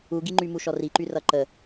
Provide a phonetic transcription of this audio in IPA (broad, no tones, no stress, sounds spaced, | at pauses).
u ɡ i ŋ͡ǃ y m u ʃ ɔ r i ǃ y r ʌ ǃ ə